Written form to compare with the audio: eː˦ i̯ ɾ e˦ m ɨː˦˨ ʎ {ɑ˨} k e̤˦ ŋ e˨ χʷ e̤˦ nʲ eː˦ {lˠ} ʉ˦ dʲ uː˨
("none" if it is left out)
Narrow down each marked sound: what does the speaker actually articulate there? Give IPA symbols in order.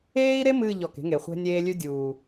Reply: ɔ˨, lʲ

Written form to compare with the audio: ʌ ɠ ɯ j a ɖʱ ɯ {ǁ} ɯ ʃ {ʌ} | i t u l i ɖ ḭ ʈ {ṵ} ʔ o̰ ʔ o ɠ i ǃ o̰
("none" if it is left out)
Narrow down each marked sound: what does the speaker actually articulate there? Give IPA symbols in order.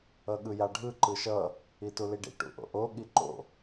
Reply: ǃ, ʌ, ṵ

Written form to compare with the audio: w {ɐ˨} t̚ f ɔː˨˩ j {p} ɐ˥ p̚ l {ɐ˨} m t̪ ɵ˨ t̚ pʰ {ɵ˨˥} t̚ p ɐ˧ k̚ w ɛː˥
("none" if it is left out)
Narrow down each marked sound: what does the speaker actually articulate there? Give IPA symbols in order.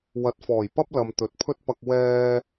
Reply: ɐ˨˥, p, ɐ˨, ɵ˥

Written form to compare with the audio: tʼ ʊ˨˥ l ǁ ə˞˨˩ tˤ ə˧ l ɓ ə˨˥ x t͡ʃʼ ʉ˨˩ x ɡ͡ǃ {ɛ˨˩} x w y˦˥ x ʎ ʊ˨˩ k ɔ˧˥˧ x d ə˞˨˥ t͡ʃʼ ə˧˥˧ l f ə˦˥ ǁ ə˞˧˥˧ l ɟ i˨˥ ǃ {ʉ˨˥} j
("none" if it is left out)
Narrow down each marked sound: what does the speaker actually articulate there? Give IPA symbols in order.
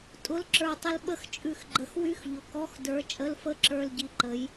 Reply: ə˨˩, ə˨˥

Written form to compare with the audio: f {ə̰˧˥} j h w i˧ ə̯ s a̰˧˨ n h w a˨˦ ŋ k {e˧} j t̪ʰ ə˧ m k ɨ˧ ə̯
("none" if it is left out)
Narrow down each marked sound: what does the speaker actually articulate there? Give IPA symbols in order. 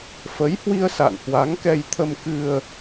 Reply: ə˨˦, ɛ˧

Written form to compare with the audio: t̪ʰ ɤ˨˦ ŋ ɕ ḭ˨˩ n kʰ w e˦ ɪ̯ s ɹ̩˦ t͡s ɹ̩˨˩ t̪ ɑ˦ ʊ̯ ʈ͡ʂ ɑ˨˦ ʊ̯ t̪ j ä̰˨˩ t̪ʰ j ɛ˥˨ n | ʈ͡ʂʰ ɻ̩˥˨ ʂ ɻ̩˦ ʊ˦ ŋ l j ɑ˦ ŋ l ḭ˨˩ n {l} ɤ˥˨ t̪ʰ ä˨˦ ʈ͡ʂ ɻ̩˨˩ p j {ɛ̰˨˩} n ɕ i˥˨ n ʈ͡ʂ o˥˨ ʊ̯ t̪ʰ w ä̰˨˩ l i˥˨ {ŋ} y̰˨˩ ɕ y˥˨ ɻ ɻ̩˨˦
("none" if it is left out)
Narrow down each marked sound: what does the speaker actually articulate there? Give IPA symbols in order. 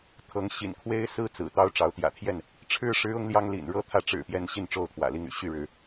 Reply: ɻ, ɛ˨˦, ŋ

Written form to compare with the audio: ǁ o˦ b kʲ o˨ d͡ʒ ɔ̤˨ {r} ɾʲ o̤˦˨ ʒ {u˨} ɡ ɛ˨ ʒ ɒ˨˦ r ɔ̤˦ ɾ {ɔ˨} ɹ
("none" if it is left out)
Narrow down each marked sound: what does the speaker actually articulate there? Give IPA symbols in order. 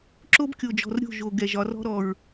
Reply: r, o˨, ɔ˨

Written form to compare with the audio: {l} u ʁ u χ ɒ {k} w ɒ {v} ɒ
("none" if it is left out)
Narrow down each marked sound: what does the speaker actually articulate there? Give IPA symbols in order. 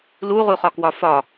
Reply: l, k, f

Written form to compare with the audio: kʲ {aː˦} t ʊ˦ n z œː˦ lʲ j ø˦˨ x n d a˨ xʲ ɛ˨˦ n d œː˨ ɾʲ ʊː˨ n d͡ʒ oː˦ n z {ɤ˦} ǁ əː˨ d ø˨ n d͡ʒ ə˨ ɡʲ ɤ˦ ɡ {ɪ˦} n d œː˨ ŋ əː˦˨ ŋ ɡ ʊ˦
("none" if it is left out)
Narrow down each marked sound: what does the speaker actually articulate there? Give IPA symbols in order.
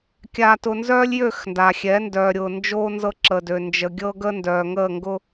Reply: aː˦, ɤ˦, ə˦

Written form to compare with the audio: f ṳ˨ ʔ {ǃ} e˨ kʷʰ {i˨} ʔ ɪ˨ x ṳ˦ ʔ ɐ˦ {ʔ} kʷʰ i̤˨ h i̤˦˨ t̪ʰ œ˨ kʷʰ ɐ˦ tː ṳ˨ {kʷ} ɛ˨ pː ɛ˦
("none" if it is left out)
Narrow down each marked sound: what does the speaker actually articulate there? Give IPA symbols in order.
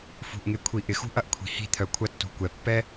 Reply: ŋ, i˨, ʔ, kʷ

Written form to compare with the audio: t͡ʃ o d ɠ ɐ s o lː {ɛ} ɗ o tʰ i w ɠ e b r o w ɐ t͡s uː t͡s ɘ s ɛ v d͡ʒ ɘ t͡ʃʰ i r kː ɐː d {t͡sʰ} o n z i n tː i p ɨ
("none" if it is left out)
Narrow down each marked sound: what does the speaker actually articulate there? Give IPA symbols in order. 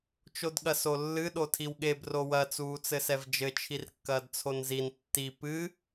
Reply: ɨ, t͡sʰ

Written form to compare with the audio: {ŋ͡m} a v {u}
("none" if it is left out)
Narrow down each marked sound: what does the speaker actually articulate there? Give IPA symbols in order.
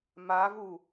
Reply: m, u

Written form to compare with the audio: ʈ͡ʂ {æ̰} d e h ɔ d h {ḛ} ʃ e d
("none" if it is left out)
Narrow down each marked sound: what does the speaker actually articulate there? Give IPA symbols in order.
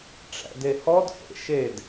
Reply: æ̰, ḛ

